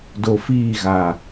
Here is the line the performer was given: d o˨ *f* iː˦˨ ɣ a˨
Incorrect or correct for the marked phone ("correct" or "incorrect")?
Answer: correct